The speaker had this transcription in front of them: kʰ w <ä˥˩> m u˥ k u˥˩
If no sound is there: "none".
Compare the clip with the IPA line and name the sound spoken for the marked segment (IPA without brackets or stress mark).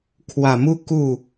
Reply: ä˨˩